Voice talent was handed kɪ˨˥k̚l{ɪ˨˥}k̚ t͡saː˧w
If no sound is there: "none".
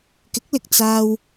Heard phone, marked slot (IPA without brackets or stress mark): ɪ˨